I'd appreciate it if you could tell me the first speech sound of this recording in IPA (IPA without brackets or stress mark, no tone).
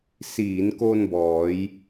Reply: s